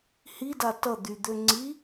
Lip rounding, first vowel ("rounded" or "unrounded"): unrounded